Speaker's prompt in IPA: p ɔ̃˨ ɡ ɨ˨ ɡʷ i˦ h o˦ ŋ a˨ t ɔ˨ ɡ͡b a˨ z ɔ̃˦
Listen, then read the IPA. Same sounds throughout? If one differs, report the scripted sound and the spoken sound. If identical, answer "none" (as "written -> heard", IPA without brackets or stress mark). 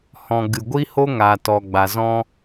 p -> h